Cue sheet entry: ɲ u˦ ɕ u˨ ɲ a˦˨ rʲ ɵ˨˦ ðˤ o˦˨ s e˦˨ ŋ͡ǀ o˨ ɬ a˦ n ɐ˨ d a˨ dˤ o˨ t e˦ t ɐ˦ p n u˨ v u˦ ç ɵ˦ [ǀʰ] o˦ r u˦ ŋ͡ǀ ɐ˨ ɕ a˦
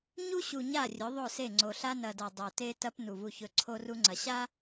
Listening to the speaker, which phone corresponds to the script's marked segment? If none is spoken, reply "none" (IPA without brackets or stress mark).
ǀʰ